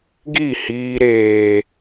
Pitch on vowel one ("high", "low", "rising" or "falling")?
falling